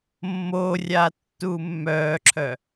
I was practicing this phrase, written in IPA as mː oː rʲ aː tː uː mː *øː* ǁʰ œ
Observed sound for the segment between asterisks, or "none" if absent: œː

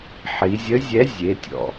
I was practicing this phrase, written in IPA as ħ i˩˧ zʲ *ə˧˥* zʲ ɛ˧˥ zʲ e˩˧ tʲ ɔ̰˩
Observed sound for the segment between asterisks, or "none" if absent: ə˧˥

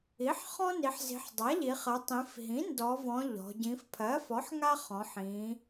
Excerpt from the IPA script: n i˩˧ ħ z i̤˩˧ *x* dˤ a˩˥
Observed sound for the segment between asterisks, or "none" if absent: ħ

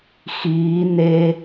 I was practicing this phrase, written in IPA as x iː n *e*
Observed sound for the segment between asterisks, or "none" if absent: e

